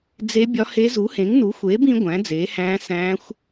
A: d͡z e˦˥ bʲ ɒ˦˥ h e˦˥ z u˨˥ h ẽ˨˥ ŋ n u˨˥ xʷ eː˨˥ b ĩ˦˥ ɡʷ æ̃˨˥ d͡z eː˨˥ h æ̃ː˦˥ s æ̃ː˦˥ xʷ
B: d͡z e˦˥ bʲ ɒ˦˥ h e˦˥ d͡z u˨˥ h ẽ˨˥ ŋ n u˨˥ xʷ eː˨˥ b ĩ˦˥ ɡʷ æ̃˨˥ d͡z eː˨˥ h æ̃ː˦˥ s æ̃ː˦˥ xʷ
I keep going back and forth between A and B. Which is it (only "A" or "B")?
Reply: A